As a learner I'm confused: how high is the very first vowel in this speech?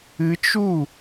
high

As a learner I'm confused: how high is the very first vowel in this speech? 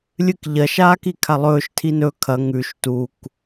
high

